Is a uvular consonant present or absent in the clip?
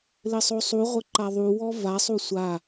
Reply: present